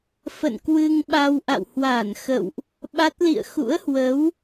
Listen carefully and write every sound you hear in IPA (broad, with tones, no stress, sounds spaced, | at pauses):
f ə̰˧˨ n k w ɨ˧ ŋ ɓ a˧ w ʔ a̰˧˨ w h w aː˧˩ n x ə̰˧˨ w ʔ | ɓ a˦˥ t̚ l ḭ˧˨ ə̯ x ṵ˧˥ ə̯ h w ə˨˦ w